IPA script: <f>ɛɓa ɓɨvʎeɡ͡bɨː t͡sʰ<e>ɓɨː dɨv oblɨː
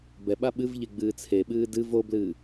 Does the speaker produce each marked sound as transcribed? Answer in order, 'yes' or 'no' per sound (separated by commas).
no, yes